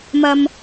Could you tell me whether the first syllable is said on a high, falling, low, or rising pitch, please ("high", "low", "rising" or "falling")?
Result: low